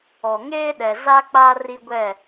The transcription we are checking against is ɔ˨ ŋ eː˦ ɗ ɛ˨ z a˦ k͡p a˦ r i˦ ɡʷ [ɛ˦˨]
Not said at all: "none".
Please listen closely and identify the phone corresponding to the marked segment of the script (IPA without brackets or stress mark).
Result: ɛ˦˨